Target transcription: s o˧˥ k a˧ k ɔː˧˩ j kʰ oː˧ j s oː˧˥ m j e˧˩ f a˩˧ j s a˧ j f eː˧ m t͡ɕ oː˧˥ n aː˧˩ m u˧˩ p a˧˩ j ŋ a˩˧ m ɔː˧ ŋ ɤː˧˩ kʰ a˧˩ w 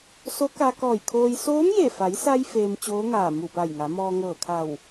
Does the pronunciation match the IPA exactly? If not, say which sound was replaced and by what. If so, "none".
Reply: n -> ŋ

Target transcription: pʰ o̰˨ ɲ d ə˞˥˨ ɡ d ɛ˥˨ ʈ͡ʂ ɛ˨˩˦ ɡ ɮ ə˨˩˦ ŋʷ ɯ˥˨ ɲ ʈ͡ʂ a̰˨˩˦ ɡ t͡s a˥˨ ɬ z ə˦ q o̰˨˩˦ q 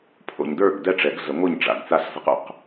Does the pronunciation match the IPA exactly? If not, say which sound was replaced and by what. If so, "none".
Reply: none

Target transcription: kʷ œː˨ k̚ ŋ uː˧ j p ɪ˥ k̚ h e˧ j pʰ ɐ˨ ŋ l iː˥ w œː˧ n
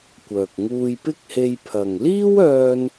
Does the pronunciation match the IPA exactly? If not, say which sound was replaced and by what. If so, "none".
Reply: none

